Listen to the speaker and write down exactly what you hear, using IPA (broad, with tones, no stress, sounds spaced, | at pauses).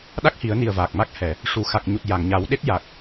ɗ a˦˥ k̚ h i˨˩˦ ə̯ n i˨˩ ə̯ v aː˨˩ k̚ m a˦˥ k̚ h ɛ˨˩˨ | ʂ u˨˩˨ x a˨˩ k̚ ɲ u˨˩ t̚ j a˨˩˨ ŋ ɲ a˨˩˦ w ɗ e˦˥ t̚ j a˨˩ k̚